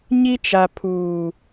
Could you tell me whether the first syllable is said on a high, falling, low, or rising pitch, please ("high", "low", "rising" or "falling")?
high